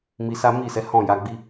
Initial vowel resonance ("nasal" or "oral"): oral